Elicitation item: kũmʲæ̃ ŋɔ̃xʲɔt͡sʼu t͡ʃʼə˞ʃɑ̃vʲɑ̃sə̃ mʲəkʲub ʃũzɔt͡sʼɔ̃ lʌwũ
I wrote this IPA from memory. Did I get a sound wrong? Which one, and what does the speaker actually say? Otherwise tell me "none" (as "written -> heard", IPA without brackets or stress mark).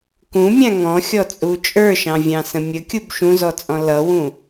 none